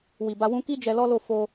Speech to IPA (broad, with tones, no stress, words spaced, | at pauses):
wi˨ba˧ wũ˧ki˦ d͡ʒɛ˧lɔ˦ lo˦˨ fo˧